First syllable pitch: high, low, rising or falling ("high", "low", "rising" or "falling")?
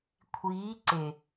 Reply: rising